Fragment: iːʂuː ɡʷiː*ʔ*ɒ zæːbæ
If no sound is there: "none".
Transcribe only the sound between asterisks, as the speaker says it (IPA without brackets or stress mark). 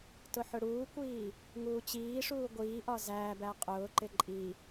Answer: ʔ